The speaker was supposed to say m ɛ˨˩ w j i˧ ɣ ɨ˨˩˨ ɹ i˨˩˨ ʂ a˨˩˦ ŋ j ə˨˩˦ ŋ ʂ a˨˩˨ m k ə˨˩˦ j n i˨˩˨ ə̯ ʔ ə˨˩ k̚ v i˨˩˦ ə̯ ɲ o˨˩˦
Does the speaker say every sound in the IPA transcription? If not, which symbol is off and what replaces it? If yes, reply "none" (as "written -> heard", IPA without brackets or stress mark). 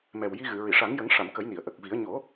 none